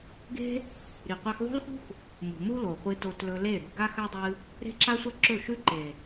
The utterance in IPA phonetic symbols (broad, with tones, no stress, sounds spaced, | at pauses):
ɡ e̤˦ | ɾ i˨ qʷ e˧ x ðˤ o̤˦ l x ṳ˦ x | m ṳ˨ m u˦ l o˨ χʷ ɨ˧ t o˧ t l ɵ˧ l e˦˨ ɾ ṳ˧ ɡ a˦ x a˦ dˤ ɨ˧ | ɾ e̤˦ ǁ a˦ sʷ ɐ˦ ǁ ɵ˦˨ ʃ ʉ˦ ǃ e˨